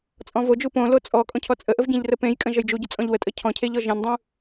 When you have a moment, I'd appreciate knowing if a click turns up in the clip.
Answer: no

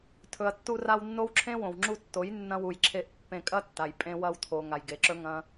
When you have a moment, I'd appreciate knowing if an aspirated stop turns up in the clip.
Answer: yes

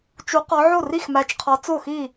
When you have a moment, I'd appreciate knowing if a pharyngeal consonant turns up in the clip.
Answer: yes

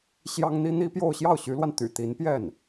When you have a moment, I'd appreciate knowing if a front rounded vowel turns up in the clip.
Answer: yes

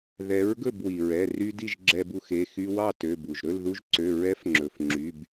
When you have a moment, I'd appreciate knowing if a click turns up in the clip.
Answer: yes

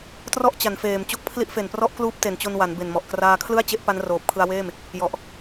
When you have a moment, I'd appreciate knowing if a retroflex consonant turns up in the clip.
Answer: no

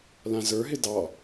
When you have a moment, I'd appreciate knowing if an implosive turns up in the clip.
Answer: no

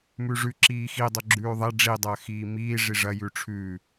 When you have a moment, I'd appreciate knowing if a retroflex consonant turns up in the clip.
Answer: yes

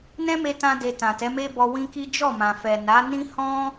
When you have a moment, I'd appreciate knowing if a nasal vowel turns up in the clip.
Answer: yes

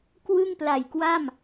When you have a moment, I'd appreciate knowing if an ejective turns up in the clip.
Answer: no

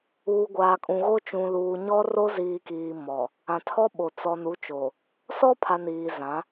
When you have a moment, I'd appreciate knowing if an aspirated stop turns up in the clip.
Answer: yes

